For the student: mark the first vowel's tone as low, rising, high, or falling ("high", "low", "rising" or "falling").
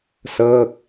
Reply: falling